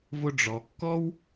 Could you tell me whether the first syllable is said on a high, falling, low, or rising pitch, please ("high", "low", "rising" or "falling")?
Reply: high